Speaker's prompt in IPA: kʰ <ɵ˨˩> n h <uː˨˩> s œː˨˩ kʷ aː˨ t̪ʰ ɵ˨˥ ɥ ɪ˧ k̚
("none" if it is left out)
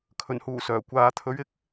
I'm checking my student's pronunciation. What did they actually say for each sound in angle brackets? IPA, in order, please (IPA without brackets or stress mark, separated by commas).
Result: ɵ˨˩, uː˨˩